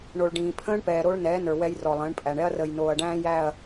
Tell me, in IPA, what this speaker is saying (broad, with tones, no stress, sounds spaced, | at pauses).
ɳ o˨ ɭ ɖ ĩː˨ pʰ ə̃ː˦ ɳ p ɛː˨ ɾ o˦ ɭ n ɛː˨˦ n ə˞˨ w ɛ˦ j r ɔ˨ lˠ ə̃ː˨˦ ɳ pʼ æ˨ ɳ ɛ˦ ɐ̯ r əː˨ j n oː˨ ɐ̯ ɖ æ̃ː˦ j æ˦˨ ɐ̯